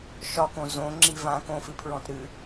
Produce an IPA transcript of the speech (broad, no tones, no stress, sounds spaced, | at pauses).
ʃ ɒ k õ z õ ŋ͡ǁ i v ã k õ f ɨ pʰ ɹ ɔ̃ t ɾ ɨ